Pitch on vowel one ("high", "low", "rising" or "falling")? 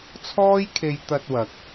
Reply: high